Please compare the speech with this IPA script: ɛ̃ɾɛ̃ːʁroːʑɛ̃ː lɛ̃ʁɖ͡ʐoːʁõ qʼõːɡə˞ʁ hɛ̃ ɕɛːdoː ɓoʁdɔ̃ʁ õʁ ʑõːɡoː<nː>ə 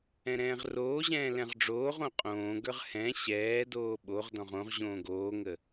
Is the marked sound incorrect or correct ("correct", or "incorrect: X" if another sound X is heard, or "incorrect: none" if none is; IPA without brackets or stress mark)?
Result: incorrect: ŋ